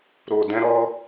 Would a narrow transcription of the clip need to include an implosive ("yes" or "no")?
no